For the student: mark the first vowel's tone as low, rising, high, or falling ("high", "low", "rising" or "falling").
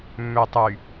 low